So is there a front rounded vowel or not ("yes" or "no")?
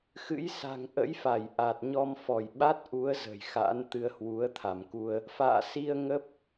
no